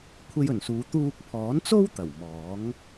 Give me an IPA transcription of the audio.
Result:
kʷʰ e˧ j ɵ˨˩ n s uː˨˧ t̪ uː˧ k̚ pʰ ɔː˨˥ n t͡s o˥ w t̪ ɐ˨˩ w m ɔː˨˥ ŋ

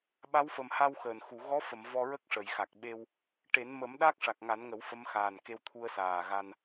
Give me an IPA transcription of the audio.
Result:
ɓ a˧˥ w f ə˨˩ m h a˧ w x əː˨˩ n x u˨˩˨ ɣ ɔ˧˥ f ə˨˩˨ m v ɔ˧ ɹ ə˦˥ k̚ ʂ ə˨˩˨ j x a˨˩ k̚ ɓ e˧ w | ʈ e˨˩˦ n m ə˨˩˦ m ɗ a˦˥ k̚ ʂ a˨˩ k̚ ŋ a˨˩˦ n ŋ ə˨˩˦ w f ə˧˥ m x aː˨˩ n k e˧ w t̪ʰ u˧ ə̯ s aː˨˩ ɣ a˧ n

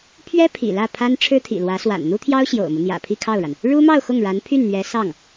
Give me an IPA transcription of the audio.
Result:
pʰ ɥ ɛ˥ pʰ ḭ˨˩ l ä˥˩ pʰ a˥ n ʈ͡ʂʰ ɻ̩˥ t̪ʰ ḭ˨˩ l w ä˧˥ s w a̰˨˩ n n̪ u˥ t̪ʰ j ɑ˥ ʊ̯ ɕ j o̰˨˩ ʊ̯ m u˦ n̪ j ä̰˨˩ pʰ i˥˧ kʰ ɑ˥˩ ʊ̯ ɻ a˩ n | ɻ u˥ m ɑ˥˧ ʊ̯ x ʊ˥˩ ŋ ɻ a˧˥ n pʰ y˥˩ n n̪ ɥ ɛ˧˥ s ɑ˥˩ ŋ

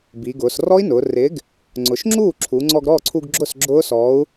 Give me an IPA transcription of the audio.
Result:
b i˩˧ ɡ ʊː˩˧ s r ɔ˦˥ i̯ n ʊː˩˧ r ɪ˨˥ ɡ | ŋ͡ǀ ʊ˩˧ ʃ ŋ͡ǁ uː˥˩ ǁʰ u˩˧ ŋ͡ǀ ɔ˧ ɡ ɾ ɔː˥˩ ǀʰ u˧ ɡ ɡ͡ǁ ʊ˥˩ s ɡ͡ǁ ʊː˦˥ s ɔ˨˥ u̯

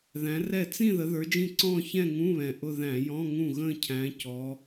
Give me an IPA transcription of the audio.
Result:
ð æ̃˨˦ r ɛ˥˩ t͡s ĩ˥˧ ð ə˨˦ ð ə˞˨˦ d͡ʒ ĩ˥˩ ǀ ɔ̃ː˥˧ ç ɛ̃˥˧ ŋ ũ˧˥˧ β ɛ̃˨˩ ʔ ʊ˥˧ ð æ̃˧˩˧ j ɔ̃˧˥˧ ŋ ũ˥˩ ɣ ə̃ː˥˧ cʰ æ̃˨˦ c ɔ˨˦

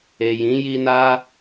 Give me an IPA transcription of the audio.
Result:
e˨ j ĩ˨˦ j i˧ n a˦

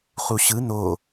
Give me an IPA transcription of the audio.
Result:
χ u ɕ ɯ n o

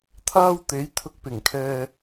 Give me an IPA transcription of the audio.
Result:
t̪ʰ aː˥ w t̪ e˨˥ j t̪ʰ ʊ˧ k̚ p ɪ˨˩ ŋ kʰ ɛː˧

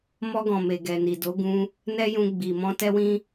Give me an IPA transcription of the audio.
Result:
m ɔ˧ ɡ ɔ̃˨ m e˨ ɡ ɛ˨ n i˨ d o˨˦ ɡ ũ˧ | n ɛ˦ j ũ˧ ɡ͡b i˨ m ɔ̃˧ t ɛ˧ w ĩ˧

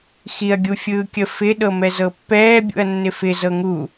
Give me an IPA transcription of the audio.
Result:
x i ɐ̯ ɡʲ u fʲ ɯː kʲ ə f ɪ ɗ ɤ m ɛ z ɤ pː ɛː bʲ ṵ ɐ̯ nː ɪ f ɪ z ɤ ŋ u

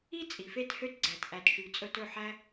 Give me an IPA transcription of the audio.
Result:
i˦ t͡sʼ i˨ f e˧ t h ø˧ t ɡ͡ǀ æ˨ t ʔ æ˨ t ʃ y˨ t͡sʼ ɵ˧ t ɵ˦˨ ħ æ˦

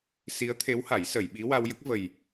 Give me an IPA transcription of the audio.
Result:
s i˧˥ ə̯ t̪ʰ e˧˥ w h a˨˩˦ j s ə˨˩˨ j ɓ i˧˥ w a˧ w j ə˦˥ k̚ v ə˨˩ j

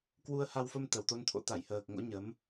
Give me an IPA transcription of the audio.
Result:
k w u˧ ə̯ h a˧ w f ə˧ m t̪ ə˨˩ w t̪ o˧ n t̪ʰ o̰˧˥ t̪ a˧˩ j h əː˨˩ k̚ ŋ o̰˧˥ ɲ ə˨˦ m

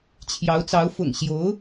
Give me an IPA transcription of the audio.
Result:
t͡ɕʰ j ɑ˧˥ ʊ̯ t͡s ɑ˧˥ ʊ̯ f ʊ̰˨˩ ŋ ɕ j o˧˥ ʊ̯

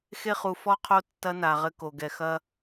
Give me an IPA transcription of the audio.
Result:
x e˧ χ u˨ f ɔ˦ qʰ o˦ tː ɐ˦ n a˨ ʁ ɘ˧ k o˨ ɡ ɛ˨ x ɐ˦

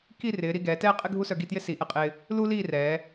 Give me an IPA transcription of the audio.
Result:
k i˥˧ r ɪː˩˧ ɾ i˥˧ ɡ ɛː˩˧ t ɛː˥ qʼ ɪ˥ ɡʱ u˥ s œ˧ ɡ i˥˧ t j ɪ˥ s i˩˧ ʔ ɛ˧ qʼ ɪː˧ | l u˥ l iː˥˧ r ɛː˩˧

